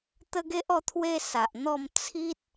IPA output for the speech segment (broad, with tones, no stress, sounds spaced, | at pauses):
t̪ ə˦ ɡ e˦ ʔ ɔ˧ t̪ʰ w e˧ s a˨ ʔ n̪ ɔ˥˧ m t͡sʰ i˦ t̚